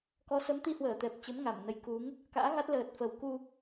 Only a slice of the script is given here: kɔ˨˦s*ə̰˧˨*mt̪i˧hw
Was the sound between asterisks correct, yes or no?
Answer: no